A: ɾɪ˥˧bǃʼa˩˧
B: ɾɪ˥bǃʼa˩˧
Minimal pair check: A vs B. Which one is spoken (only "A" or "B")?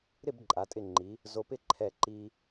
A